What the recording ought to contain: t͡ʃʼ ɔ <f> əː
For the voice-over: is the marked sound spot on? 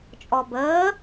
no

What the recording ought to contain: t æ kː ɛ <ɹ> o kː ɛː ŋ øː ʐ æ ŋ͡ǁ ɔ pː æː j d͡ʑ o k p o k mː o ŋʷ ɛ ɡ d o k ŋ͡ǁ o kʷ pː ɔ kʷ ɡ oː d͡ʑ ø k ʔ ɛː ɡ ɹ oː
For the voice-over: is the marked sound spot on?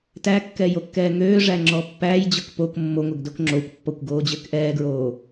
no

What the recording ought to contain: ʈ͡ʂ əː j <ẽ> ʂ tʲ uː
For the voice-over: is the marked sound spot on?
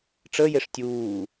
no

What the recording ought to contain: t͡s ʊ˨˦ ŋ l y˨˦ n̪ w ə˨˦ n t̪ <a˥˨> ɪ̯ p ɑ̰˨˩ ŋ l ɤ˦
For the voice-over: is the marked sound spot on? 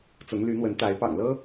no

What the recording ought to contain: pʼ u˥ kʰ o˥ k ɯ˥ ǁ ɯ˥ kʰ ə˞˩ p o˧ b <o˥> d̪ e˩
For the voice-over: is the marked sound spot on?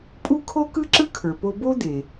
yes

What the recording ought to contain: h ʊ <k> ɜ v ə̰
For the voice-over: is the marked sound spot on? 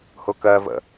yes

